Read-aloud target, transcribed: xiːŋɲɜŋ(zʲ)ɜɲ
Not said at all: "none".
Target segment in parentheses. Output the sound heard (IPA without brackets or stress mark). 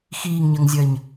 zʲ